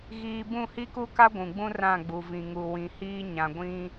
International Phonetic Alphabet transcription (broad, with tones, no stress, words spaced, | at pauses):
ɣiː˦ bũ˦˨hi˦ku˦ka˦ ɡʷũ˨ɡ͡bũ˦ rã˦˨ɡ͡bu˨vĩ˨ŋu˨ wĩ˨hiː˦ ɲã˨ɡʷĩ˦